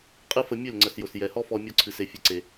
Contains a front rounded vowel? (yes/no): yes